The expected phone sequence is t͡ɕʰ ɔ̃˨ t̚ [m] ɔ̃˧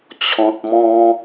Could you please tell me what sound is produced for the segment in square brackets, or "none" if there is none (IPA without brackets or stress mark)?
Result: m